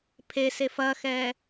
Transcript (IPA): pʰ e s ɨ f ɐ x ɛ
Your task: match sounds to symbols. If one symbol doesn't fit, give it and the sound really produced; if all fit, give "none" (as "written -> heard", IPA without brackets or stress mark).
ɨ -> e